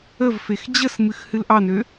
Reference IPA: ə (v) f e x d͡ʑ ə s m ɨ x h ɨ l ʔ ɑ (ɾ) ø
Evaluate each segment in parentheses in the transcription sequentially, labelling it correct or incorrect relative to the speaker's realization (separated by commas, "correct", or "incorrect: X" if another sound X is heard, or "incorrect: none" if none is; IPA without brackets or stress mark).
correct, incorrect: n